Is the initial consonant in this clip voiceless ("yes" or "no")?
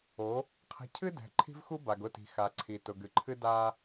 yes